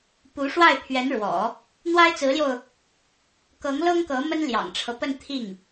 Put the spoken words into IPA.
p u˧˥ ʂ w a˥˩ ɪ̯ pʰ ɥ ɛ˧˥ n ɻ w ɔ̰˨˩˦ | n̪ w a˥ ɪ̯ t͡s ɹ̩˧˥ l j o˧ ʊ̯ | k ɤ˧˥ ŋ l ɤ˥ ŋ k ɤ˧˥ m ə˥ n l j ɑ̰˨˩ ŋ ʈ͡ʂʰ ɤ˦ p ə˥˧ n t̪ʰ i˥˩ ŋ

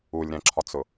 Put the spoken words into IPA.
u lʲ ɾ ɛ̃ ǁʰ ɒ t͡s ʊ

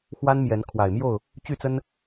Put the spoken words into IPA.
x w a˦ n m j ɛ˨˦ n kʰ w a˨˩ ɪ̯ m j o˥˨ ʊ̯ | t͡ɕ y˥˨ t͡s ə˦ n

